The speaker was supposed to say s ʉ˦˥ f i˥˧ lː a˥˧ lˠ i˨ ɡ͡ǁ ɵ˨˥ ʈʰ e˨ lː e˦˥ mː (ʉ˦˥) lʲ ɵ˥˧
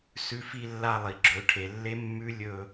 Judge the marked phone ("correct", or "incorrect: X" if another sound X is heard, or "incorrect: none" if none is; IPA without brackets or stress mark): correct